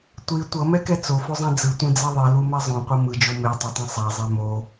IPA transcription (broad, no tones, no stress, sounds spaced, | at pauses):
tʷ i tʷ ʌ m ɛ k ɛ t͡s o f o zˤ ɛ̃ d͡z ɯ tʷ ẽ d͡z a ðˤ i l u m ɛ zˤ õ qʷ ʌ m ɯ d͡ʒ o m e tˤ ɛ tˤ ɛ̃ sˤ a zˤ ɛ m o